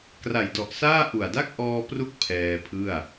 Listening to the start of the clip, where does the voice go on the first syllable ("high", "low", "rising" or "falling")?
low